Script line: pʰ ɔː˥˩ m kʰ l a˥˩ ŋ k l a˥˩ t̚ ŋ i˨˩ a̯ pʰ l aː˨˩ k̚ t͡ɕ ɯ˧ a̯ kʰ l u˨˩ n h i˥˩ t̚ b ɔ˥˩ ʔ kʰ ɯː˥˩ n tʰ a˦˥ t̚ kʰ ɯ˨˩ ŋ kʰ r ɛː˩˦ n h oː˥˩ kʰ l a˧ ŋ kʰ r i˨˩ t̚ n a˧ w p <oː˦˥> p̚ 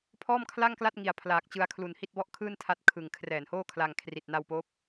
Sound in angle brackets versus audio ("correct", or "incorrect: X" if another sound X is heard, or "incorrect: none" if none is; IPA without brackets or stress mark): correct